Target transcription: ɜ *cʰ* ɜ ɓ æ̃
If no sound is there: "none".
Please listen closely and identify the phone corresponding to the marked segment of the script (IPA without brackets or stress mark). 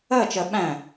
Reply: t͡ʃ